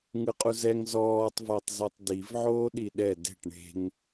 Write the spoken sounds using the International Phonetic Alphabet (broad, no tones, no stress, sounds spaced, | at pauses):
ŋ ɯ qʼ u z ɛ ŋ z ɔː tˤ v a tˤ z ɤ tˤ d i v ʕ oː ɗ i ɗ ɛ d e̤ ʈ ɳ e̤ ŋ